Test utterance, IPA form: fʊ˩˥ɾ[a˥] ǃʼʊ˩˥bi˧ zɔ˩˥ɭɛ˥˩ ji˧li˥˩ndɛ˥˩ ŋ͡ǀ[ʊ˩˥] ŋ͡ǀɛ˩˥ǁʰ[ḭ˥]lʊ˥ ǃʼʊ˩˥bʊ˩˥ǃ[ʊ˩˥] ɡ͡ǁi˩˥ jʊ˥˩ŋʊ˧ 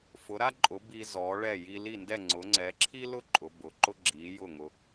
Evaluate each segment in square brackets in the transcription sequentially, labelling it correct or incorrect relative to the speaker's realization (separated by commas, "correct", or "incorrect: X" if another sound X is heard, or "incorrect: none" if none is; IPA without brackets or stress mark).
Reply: correct, correct, incorrect: i˥, incorrect: ʊ˥